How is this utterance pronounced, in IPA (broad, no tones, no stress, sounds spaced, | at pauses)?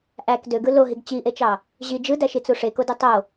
ʔ æ k d ø ɡ ɯ l o ɦ i ɡ t͡ɕ i ʔ e t͡ʃ ɑ | ʑ i d͡ʒ ɯ d æ ʃ i t͡s u ʂ e k o d ɯ tˤ o